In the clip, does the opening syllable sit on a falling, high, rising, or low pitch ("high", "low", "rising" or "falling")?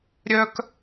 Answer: high